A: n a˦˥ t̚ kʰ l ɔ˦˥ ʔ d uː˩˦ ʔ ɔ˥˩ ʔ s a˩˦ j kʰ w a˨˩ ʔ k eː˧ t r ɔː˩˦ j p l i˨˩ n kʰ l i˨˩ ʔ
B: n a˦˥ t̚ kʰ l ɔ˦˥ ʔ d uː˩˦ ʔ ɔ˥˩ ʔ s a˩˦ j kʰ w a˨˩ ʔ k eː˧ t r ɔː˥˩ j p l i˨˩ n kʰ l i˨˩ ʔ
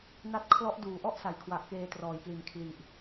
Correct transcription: A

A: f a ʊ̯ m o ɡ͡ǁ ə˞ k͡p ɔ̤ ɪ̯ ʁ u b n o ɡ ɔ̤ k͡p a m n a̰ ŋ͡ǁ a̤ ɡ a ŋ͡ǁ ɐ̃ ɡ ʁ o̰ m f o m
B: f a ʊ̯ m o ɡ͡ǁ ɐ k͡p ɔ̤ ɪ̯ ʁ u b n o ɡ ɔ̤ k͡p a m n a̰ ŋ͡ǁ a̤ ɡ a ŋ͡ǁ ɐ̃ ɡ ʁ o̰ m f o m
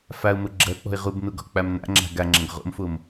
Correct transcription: B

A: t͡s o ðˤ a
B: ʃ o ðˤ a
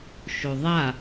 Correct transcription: B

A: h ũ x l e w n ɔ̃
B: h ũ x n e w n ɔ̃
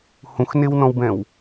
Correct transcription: B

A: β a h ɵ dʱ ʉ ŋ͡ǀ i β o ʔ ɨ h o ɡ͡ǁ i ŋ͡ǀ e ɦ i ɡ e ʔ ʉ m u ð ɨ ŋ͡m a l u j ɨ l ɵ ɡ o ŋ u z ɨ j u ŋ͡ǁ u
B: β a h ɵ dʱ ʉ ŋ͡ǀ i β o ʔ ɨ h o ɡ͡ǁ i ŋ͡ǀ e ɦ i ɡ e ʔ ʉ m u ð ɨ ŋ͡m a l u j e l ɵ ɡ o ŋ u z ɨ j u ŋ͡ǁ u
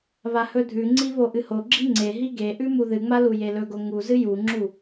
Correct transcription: B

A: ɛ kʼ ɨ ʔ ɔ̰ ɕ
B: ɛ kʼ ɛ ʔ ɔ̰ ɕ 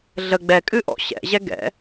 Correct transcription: A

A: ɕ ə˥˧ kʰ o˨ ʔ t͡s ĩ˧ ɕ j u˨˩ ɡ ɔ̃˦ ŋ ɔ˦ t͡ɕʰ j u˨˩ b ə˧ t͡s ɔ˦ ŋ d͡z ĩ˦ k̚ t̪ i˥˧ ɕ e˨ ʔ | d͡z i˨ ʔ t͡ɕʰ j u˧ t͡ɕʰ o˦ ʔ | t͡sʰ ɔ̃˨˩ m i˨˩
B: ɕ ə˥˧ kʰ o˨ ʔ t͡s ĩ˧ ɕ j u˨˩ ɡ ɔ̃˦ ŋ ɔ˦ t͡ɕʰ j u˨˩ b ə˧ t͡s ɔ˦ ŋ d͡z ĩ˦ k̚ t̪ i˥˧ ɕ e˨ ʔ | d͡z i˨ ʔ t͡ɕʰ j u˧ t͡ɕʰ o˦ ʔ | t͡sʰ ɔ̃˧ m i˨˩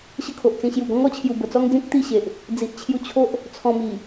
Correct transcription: B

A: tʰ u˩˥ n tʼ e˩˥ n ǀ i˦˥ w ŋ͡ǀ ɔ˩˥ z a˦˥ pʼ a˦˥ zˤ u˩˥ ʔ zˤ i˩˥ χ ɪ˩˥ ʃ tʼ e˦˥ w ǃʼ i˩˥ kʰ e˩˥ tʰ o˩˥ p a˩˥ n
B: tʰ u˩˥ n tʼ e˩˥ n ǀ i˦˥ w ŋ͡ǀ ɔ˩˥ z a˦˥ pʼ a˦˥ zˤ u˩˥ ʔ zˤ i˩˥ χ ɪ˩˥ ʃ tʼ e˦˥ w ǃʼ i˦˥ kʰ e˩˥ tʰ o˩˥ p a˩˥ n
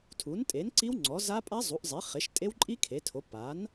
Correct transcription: B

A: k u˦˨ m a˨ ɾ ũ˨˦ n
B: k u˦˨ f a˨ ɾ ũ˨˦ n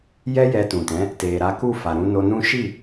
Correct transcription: B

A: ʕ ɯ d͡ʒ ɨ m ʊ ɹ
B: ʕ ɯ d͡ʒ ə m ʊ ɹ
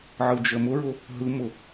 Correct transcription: B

